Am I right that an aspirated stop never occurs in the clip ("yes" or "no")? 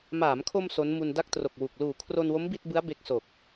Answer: no